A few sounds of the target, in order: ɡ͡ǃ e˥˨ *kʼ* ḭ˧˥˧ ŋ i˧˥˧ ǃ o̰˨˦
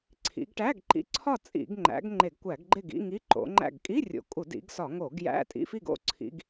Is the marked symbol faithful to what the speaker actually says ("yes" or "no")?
no